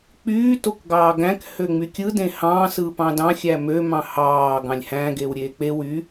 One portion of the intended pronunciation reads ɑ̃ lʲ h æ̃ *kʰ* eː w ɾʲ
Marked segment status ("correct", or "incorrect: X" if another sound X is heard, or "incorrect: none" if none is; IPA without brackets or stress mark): incorrect: ɡ